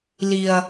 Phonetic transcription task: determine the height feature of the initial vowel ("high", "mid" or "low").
high